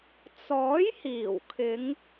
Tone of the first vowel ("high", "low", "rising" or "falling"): rising